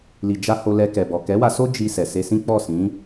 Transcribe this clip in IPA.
l i˨ d͡ʒ a˧ h o˧ l ɛ˧ k ɛ˨ b ɔ˨ k ɛ˨˦ w a˧ s o˦ d͡ʒ i˧ s ɛ˨ s e˧ s ĩ˦ k͡p ɔ˦˨ s ĩ˨˦

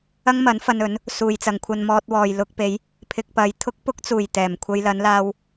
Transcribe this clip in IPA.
ɐ˥ ŋ m ɐ˨˥ n f ɐ˧ n ɵ˨˥ n | s uː˨ j t͡s ɐ˨ ŋ kʷʰ ɐ˧ n m ɔː˧ t̚ w ɔː˨ j l ʊ˧ k̚ p e˨˧ j | pʰ ɪ˨ k̚ p ɐ˨ j t̪ʰ ʊ˥ k̚ p ʊ˥ k̚ t͡s uː˨˩ j t̪ ɛː˨˩ m kʷʰ ɐ˧ j l ɐ˨˧ n l aː˧ w

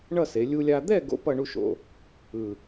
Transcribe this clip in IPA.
ɳ ʌ˥˧ s e˩˧ lʲ u˧ lʲ a˧ d̪ ɛ˥˧ ɡ o̰˥ p ʌ˥˧ ɳ u˥˧ ʃ o̰˧˩ | ɯ˧˩

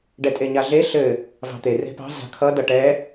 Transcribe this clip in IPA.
ɖ ɛ tʼ e ɲ a ɮ e ɬ ɘ | v ɑ̤ t̪ e r e̤ p ɑ̤ z a̤ kʰ ʌ d ʌ ʈ ɛ

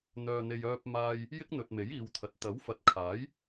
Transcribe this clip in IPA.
n̪ œː˨ n̪ e˨ j œː˧ p̚ m aː˧ j | j ɪ˥ k̚ n̪ ɵ˨ t̚ m e˨˥ j iː˨˧ w t̪ʰ ɐ˨˥ t̚ t̪ ɐ˨˥ w f ɐ˨˥ t̚ kʰ aː˨˥ j

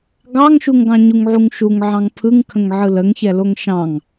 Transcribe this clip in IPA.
ɡ ɑ ŋ ʃ u ŋ ɡ ɑ̃ ɲ u ŋ ʕ u ŋ ʃ u ŋ ʕ ɑ̃ ŋ pʰ ɯ ŋ kʰ ə̃ ŋ ʕ ɯ l ə ŋ ç ɛ l o ŋ ʃ ɑ̃ ŋ

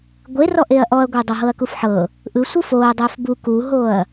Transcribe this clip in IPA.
ɡʷ e r ɔ ʔ e ɐ̯ ʔ ɔ ɐ̯ ɡʷ e dˤ o ɦ ɤ ɐ̯ k u f ħ ɤ | ʔ ɯ sʷ ɯ f o ɐ̯ dˤ ɛ f b u k u ɦ o ɐ̯

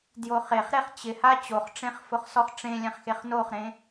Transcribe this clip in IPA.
d j o χ e χ ɾ e χ t͡ɕ ɪ h a t͡ɕ o χ ʈ͡ʂ ẽ χ f ʊ χ s ɔ χ ʈ͡ʂ ẽ lʲ ɛ̃ χ x e χ n o χ ɾ ẽ

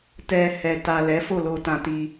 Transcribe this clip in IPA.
t ɛ˧ h ɛ˨ t a˨ l ɛ˨˦ f o˦˨ l o˧ t ã˧ t i˧

